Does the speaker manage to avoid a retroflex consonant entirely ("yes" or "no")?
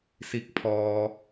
yes